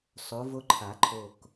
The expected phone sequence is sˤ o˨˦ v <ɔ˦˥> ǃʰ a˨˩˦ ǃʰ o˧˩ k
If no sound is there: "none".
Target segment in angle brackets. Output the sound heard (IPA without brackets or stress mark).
o˦˥